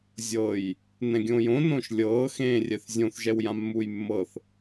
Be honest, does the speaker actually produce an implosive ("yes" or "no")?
no